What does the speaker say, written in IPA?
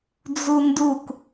d͡z u n d u k

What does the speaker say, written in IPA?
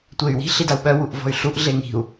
tʷ e y̯ w i̤ ɬ i d a u̯ ɓ œ w u ʔ v ɔ̤ y̯ ɬ u ʔ ɮ e ŋ i̤ u̯

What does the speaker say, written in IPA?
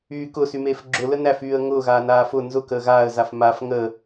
yː k ʊ s y m eː f ɡ͡ǁ ʊ l ə n æ f yː ə̯ ŋ ʊː ɣ aː n aː f ʊ n z ʊ k əː ɣ aː ə̯ z a f m a f ŋ əː

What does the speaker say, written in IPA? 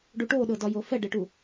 ɖ u ʈ o ɗ ɤ d ɒ j o f ɛ ɖ e ʈ u

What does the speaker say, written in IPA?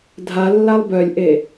dʱ a lː a lˠ b œ lʲ ʔ e

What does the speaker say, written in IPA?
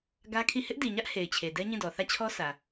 ɡ ä˦ kʰ i˦˨ h ɪ˦ ʔ d i˨ ɲ ä˦ ʔ h e˨ ɪ̯ t͡ɕʰ e˨ d ɛ˦ ɲ ĩ˦˨ d ɔ˨ θ ä˦˨ t͡ɕʰ ɔ˦ s ä˨

